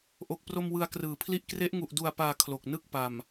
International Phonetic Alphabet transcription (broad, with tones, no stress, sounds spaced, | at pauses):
ʔ o˨˩ k̚ p r o˧ m w ɯ˧ a̯ k r ɯː˨˩ pʰ l i˥˩ ʔ k r e˦˥ ʔ ŋ u˨˩ ʔ d u˨˩ a̯ p aː˨˩ kʰ l o˨˩ k̚ n ɯ˥˩ k̚ p a˨˩ m